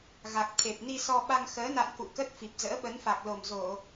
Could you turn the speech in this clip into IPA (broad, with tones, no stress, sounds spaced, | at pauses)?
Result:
ɣ a˨˩ k̚ t̪ʰ e˨˩ p̚ n i˧ s ɔ˧ ɓ a˧ ŋ x əː˨˦ n a̰˧˨ n k ṵ˧˨ k ə˦˥ t̚ f i˨˩ p̚ z ə̰ː˧˥ ɓ ə˨˦ n f a˨˩ k̚ l o˨˩ m z o˧˩˨